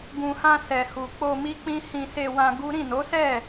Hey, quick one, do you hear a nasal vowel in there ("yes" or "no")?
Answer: yes